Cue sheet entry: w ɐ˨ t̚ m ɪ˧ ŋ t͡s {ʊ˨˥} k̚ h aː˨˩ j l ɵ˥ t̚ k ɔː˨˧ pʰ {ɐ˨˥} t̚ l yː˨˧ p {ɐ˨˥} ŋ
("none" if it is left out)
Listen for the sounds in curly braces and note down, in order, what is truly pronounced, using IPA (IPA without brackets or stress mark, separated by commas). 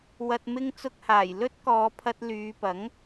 ʊ˧, ɐ˧, ɐ˨˥